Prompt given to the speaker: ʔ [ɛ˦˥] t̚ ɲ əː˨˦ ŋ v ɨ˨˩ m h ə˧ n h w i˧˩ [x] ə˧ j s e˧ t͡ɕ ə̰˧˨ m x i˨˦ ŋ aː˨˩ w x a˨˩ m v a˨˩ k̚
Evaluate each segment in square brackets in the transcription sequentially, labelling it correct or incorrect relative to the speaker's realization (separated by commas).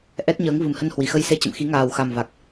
correct, correct